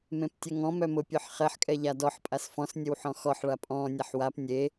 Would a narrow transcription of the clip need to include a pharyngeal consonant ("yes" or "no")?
yes